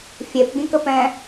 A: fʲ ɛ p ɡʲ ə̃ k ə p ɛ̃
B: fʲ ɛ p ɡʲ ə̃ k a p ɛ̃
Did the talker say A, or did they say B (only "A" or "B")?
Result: A